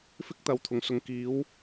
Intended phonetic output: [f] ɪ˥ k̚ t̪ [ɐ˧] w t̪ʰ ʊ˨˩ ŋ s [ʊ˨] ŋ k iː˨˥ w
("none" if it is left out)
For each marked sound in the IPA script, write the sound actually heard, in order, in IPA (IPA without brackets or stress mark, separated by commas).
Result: f, ɐ˨˥, ʊ˨